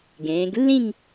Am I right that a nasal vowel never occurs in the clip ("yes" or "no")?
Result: no